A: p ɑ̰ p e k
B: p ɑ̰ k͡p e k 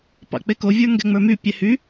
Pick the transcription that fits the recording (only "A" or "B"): B